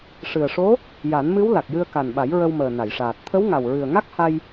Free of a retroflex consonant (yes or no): no